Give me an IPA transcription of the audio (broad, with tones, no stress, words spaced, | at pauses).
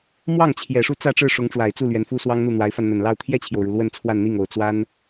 mwɑ˥˩ŋt͡ɕʰjɛ˨˩ ʂu˥˧t͡sä˥˧ʈ͡ʂɻ̩˥˩ʂʊ˧˥ŋ ʈ͡ʂwa˨˩ɪ̯t͡su˥˩ lɥɛ˧˥nfu˥swɑ˥ŋ n̪u˥˩n̪wa˧˥ɪ̯fa˧n n̪ə˨˩nlɑ˥˧ʊ̯ t̪ʰjɛ˥˩t͡ɕʰjo˩ʊ̯ɻu˩ lwə˥˧nt͡sʰwa˥˧nn̪i˥˩ŋ o˨˩ʊ̯ t͡swa˥n